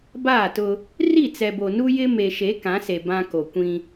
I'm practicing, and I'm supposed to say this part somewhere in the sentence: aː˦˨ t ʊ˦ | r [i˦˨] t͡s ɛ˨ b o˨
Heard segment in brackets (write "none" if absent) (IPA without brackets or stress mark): i˦˨